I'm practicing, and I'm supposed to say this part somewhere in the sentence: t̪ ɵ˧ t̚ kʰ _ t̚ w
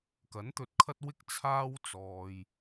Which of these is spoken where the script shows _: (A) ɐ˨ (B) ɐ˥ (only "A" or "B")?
B